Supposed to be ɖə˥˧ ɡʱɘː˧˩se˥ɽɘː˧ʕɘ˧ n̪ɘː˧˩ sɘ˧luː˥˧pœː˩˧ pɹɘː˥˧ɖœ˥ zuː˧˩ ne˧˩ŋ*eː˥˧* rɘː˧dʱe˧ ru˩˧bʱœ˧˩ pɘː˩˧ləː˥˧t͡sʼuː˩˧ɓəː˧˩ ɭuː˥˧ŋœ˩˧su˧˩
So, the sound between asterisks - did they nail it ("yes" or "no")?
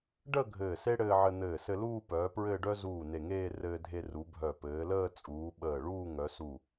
yes